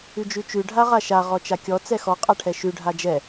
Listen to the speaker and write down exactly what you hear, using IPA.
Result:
ʉd͡ʒʉt͡ʃʉ ɖʱaʁaʃa ʁɔt͡ʃakʲɔ t͡sɛxɔ qʼaʈʰɛʃʉ ɖʱad͡ʒɛ

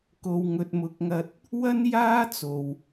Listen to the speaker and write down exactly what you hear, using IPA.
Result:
ko˨wŋɵ˨t̚mʊ˨˥k̚ŋɐ˧t̚ | wɐ˥njaː˥t͡so˨w

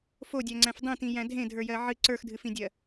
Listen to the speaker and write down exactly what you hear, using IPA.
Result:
fodʲæŋ͡ǀæ̃f dˤĩtĩ jæ̃dʱẽ dʱə˞jɜʕɨ ǀə˞xdʱɨfĩdʲɜ

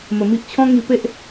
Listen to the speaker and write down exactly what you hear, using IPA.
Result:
mə˧mi˦ʔ t͡ɕʰɔ̃˦ŋi˧pe˦ʔ

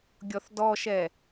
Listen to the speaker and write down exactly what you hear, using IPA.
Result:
ɡʲɔθdɔʃɛ

